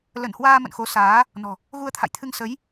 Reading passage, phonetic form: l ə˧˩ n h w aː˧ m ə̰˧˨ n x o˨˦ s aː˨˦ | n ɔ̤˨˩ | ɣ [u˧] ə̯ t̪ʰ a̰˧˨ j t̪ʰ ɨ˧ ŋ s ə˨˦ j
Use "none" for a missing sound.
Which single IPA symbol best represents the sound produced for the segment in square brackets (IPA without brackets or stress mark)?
u˧